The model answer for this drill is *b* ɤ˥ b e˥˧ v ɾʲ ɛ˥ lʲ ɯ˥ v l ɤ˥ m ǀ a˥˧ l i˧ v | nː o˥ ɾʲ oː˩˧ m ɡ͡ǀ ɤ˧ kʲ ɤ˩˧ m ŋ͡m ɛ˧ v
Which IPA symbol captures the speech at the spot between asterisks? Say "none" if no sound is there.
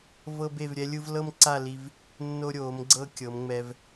v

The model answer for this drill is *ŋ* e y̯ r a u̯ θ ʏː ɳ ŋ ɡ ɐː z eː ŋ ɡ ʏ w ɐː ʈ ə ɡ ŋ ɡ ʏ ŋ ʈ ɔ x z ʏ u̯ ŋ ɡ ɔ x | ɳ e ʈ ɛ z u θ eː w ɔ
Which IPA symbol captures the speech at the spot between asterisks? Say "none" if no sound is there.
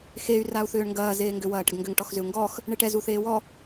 x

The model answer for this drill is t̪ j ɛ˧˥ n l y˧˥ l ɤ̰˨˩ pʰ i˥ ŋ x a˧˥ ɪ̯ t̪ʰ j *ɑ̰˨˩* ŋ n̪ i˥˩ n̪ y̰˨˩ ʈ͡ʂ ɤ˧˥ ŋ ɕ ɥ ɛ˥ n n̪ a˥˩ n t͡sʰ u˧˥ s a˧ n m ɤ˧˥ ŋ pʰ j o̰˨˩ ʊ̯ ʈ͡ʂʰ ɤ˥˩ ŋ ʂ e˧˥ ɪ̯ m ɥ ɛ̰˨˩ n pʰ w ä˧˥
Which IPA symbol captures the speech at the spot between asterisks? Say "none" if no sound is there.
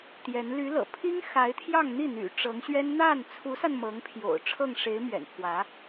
ɑ˥˧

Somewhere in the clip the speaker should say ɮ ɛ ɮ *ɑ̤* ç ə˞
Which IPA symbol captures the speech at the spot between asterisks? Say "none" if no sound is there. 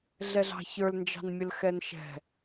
ɑ̤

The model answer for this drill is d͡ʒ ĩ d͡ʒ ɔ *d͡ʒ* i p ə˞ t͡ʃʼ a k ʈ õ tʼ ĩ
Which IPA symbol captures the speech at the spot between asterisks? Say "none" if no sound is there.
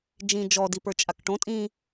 d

